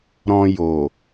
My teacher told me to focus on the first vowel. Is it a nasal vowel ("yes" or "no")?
yes